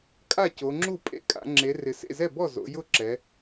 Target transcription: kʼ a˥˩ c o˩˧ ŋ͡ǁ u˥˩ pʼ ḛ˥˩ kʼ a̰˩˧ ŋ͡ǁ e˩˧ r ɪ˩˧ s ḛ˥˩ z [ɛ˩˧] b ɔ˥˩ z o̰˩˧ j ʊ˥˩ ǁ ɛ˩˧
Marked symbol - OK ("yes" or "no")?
no